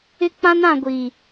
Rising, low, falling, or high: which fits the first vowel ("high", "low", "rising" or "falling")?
high